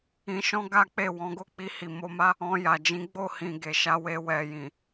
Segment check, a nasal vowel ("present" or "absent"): present